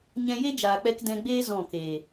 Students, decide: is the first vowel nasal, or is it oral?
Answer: nasal